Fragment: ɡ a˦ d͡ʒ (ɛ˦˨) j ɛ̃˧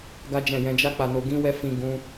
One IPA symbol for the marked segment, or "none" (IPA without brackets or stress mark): ɛ̃˦˨